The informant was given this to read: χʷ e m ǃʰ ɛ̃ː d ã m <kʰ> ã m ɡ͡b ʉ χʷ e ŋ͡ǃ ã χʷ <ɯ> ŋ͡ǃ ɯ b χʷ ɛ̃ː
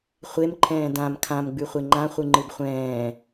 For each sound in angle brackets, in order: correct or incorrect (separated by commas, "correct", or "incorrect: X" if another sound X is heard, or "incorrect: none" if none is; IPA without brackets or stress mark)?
correct, correct